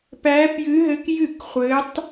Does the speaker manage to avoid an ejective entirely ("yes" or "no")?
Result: yes